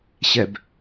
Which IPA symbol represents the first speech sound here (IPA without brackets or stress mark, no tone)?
ɕ